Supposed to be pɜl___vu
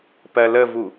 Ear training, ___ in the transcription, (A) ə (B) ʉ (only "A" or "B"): A